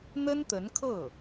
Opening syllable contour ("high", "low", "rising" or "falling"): high